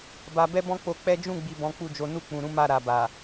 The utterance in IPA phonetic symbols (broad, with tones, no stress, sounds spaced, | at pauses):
b a˨ b ɛ˧ b ɔ̃˦ k͡p o˧ k͡p ɛ˦ d͡ʒ ũ˦˨ ɡ͡b i˨ b ɔ̃˨˦ k͡p u˦˨ d͡ʒ o˨˦ n u˦˨ k͡p ũ˨ ɾ ũ˨˦ m a˦˨ ɾ a˨ b a˨